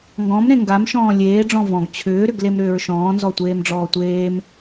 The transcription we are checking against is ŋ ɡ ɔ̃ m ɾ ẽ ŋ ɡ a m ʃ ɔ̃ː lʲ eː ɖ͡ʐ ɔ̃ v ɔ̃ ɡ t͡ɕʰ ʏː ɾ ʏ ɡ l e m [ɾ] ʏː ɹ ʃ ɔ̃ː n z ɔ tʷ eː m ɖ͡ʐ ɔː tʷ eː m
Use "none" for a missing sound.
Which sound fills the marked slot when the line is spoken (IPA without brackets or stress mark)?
ɾ